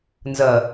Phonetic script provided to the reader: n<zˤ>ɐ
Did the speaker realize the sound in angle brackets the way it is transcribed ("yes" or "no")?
no